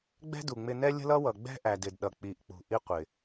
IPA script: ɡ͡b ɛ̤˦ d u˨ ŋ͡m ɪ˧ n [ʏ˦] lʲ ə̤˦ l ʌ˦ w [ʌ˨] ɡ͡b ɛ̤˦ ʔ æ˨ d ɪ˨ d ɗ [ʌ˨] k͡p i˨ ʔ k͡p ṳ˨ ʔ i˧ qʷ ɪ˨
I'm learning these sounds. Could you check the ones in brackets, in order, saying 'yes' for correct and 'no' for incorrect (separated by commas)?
no, yes, yes